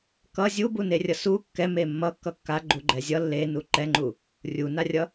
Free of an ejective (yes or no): yes